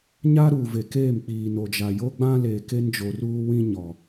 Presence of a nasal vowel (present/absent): present